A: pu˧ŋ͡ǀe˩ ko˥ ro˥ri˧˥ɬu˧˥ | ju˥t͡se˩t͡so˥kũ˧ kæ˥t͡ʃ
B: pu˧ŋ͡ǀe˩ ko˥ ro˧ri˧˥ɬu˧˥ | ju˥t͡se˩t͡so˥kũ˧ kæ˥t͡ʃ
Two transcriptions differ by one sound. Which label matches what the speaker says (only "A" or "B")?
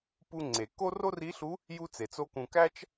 A